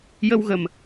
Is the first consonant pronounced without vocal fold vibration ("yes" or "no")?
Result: no